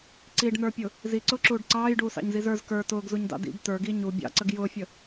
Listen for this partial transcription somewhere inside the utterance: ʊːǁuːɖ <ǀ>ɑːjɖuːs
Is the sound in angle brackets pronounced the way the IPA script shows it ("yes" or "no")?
yes